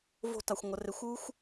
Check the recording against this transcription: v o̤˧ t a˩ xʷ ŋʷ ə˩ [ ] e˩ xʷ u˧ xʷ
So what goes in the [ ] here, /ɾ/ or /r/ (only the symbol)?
r